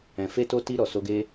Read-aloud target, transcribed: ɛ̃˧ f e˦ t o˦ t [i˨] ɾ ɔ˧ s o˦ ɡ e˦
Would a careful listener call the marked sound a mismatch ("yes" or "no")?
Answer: yes